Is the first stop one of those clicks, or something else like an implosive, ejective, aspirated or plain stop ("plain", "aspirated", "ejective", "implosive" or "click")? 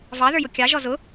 plain